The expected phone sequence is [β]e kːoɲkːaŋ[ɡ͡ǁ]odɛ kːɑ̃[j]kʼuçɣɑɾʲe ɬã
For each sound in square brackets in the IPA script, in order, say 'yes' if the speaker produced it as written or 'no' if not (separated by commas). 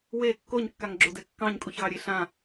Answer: no, yes, no